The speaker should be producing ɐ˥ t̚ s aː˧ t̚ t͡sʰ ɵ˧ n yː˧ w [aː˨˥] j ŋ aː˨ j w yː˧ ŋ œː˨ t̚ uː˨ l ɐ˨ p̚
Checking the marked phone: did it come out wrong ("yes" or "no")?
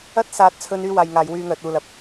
yes